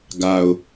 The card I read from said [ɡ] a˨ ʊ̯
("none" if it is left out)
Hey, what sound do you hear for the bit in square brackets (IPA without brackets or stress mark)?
ɡ